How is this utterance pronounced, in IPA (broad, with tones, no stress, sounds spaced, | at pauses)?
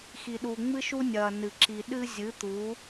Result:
x i˨ ɗ u˨ ŋ͡m ɨ˦ ʃ u˦ nʲ ɐː˨ n ɨ˨ ǁ i˨ ɗ ɨ˦ zʲ ɨ˨˦ t̪ u˨˦